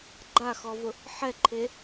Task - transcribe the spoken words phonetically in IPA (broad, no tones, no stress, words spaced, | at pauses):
ɡ͡ǃaxɔvʊ | ħɛǃʰe